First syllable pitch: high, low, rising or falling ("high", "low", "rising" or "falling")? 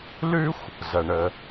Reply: high